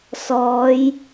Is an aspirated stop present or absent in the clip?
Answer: absent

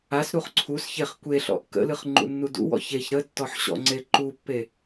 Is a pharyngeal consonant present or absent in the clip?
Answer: present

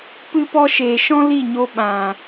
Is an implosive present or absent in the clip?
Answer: present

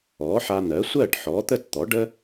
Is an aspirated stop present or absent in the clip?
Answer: absent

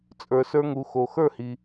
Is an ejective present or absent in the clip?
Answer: present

